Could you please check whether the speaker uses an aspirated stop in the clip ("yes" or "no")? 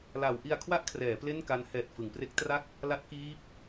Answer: yes